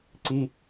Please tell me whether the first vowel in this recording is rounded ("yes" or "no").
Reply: no